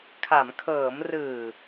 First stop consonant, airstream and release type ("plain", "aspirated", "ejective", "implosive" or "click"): aspirated